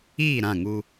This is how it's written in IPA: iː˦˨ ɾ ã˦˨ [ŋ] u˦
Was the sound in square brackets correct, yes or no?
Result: yes